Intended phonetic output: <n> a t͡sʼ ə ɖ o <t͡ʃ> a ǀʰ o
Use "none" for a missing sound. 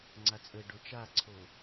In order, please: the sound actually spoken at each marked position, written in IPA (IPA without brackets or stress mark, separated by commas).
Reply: ŋ͡ǀ, t͡ʃ